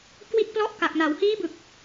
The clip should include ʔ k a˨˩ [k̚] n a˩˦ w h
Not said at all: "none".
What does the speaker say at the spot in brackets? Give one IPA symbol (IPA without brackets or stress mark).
k̚